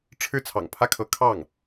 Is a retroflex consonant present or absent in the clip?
present